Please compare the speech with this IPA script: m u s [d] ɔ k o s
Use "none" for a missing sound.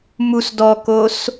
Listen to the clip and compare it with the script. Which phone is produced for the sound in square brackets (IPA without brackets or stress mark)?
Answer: d